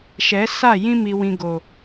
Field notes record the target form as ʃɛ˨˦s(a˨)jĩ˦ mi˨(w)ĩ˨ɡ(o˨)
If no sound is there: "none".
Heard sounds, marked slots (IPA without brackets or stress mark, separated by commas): a˦˨, w, o˨